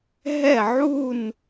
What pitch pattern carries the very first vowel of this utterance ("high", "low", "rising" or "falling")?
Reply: falling